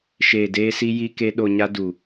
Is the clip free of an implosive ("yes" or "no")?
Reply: no